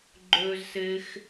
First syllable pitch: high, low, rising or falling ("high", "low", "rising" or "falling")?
high